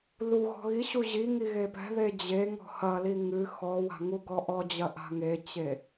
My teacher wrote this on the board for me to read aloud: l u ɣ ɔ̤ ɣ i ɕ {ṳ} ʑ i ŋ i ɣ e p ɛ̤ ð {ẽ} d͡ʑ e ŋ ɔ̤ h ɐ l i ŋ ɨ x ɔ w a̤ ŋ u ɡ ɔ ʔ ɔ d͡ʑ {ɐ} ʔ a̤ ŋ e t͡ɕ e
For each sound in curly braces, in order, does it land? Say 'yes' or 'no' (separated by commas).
no, no, yes